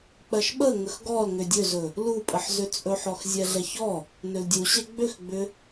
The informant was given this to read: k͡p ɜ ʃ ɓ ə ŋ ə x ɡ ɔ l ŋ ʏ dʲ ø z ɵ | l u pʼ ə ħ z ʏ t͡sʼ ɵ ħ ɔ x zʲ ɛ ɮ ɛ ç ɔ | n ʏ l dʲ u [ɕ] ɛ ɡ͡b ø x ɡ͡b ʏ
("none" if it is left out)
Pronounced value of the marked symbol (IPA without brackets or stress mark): ɕ